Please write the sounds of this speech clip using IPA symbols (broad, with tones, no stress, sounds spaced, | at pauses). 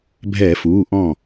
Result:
bʱ ɛː˧˩˧ f uː˩˧˩ ʔ ɔ̃˧˩